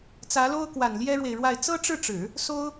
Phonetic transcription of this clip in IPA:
t͡s ä˧˥ l o˥ ʊ̯ k w a˨˩ n l j ɛ˥ ɻ w e˨ ɪ̯ ɻ w a˥˩ ɪ̯ t͡s ɤ˥ ʈ͡ʂ ɻ̩˥˩ ʈ͡ʂ ɻ̩˨˩˦ | s o˥ ʊ̯

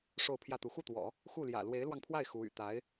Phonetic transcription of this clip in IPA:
ʂ o˥˧ ʊ̯ pʰ j ä˥˩ t̪ u˧˥ x u˥˩ t̪ w ɔ̰˨˩˦ | x u˥˩ l j ä̰˨˩ l w e˧˥ ɪ̯ l w ɑ˧ ŋ pʰ w a˥˩ ɪ̯ x u˧˥ y̰˨˩ t̪ a˧˥ ɪ̯

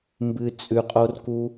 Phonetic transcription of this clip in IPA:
m b ɨ t͡sʼ ʉ qʼ o r k u

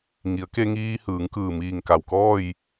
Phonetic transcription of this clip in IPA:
ŋ i˩˧ ə̯ k e˧ ŋ iː˧ h ɯː˩˧ ŋ k ɯː˧˩ m iː˧˩ ŋ k a˩ w k ɔː˥˨ j

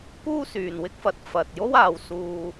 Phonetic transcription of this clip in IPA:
k uː˥ s yː˨ n w ɪ˥ k̚ f ɐ˨˥ t̚ f ɐ˨ t̚ j o˥ w aː˨˧ w s uː˧

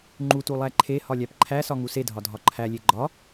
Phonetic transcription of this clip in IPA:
ŋ͡ǃ u t u lˠ æ ǃʰ e h ɒ lʲ æ p ǃʰ æ s ɒ ŋ u s e dʱ ɒ dʱ ɒ ǃʰ æ lʲ e ɡ͡ǃ ɒ

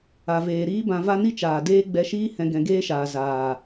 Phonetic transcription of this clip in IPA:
a˨ v eː˨ ɾ iː˦ b ã˧ v a˦ n i˦ t͡ʃ aː˨ d eː˦ ɡ͡b ɛ˧ ʃ iː˦ h ɛ̃˧ ɡ ɛ̃˧ ɡ eː˦ ʃ aː˨ z aː˨

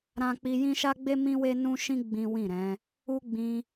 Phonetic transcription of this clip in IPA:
ɾ ã˦ k͡p i˦ j ĩ˦ ʃ a˦ ɡ͡b e˦ m ĩ˦ w e˦ n ũ˦ ʃ ĩ˦ ɡ͡b ĩ˦ w ĩ˦˨ ɾ ɛ̃˨˦ | u˦ ɡ͡b ĩ˧

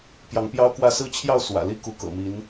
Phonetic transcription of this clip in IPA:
p j ɑ˧˥ ŋ p j ɑ˥ ʊ̯ k w ä˥˧ s ɹ̩˥˧ t͡ɕʰ j ɑ˥˩ ʊ̯ s w ä̰˨˩ l i˥ k u˧˥ k ɤ̰˨˩ m i˧˥ n

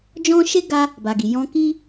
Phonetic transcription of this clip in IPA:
d͡ʒ ɔ̃˦ ʃ e˦ ɡ a˦ | b a˨ ɡ i˨ j ɔ̃˧ k i˦

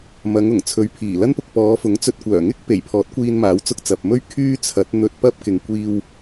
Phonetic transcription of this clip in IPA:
m ɐ˨˧ ŋ ʊ˨˩ ŋ t͡sʰ ɵ˨ ɥ pʰ iː˨˩ l ɐ˥ n p ʊ˧ k̚ p ɔː˨˧ f ʊ˨˥ ŋ t͡s ɵ˧ t̚ kʷ œː˨˩ ŋ ɪ˥ k̚ p e˨˩ j pʰ ɔː˨˥ t̚ kʷ iː˧ n m aː˨˥ w t͡s ʊ˧ k̚ t͡s ɐ˨ p̚ m ɵ˥ ɥ kʰ yː˥ t͡sʰ ɐ˨˥ t̚ n̪ ɵ˧ t̚ p ɐ˥ p̚ k ɪ˨ ŋ kʷ iː˧ w

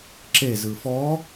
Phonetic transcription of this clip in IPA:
ǁ e z ɯ f ɔ

